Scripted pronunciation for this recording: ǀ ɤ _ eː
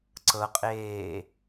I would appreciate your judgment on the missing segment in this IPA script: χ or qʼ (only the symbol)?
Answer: qʼ